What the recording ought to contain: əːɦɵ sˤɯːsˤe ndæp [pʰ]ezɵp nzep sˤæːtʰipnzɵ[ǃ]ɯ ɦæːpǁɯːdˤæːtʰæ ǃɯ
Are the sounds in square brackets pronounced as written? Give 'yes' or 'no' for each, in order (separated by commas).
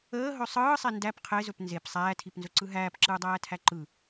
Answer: no, no